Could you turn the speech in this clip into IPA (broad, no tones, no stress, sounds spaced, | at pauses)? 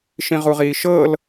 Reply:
ʃ ĩ ʁ u ʁ iː ʃ ɤ l